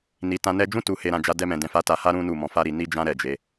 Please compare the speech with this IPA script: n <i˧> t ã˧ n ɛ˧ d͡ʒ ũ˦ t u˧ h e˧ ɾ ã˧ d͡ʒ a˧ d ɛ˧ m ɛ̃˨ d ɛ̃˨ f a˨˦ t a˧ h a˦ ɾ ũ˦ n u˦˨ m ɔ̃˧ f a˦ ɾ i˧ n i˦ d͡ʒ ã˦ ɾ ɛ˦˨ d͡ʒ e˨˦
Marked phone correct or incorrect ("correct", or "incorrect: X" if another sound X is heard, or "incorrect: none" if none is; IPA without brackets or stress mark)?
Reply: incorrect: i˨